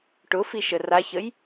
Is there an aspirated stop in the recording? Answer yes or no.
no